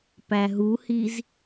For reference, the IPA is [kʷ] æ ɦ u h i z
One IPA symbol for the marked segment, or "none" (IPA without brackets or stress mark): p